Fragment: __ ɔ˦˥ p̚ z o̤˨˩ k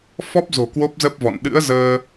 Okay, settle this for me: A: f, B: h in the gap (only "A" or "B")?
A